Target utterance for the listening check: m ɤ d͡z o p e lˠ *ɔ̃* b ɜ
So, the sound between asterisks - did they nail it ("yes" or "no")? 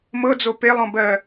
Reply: yes